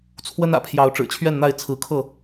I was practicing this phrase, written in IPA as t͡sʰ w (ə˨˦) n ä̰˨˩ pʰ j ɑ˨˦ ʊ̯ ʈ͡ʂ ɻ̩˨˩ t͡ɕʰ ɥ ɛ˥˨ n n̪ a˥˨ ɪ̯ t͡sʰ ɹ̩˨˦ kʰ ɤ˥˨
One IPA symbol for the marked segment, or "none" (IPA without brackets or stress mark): ə˦